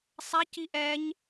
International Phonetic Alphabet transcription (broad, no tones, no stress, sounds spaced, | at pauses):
sˤ a c i ʔ ɛ ɲ